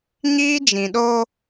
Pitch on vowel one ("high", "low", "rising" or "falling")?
high